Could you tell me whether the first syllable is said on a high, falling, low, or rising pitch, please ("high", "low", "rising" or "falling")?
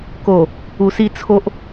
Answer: low